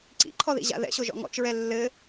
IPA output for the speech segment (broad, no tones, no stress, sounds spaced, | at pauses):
ǀ ḭ ǃʰ ɔ ð ḭ ʑ a̰ ð ɛ̰ ɕ o ʒ ɔ̰ ŋ ɔ̰ t͡ʃ ɹ ɛ lː ɘ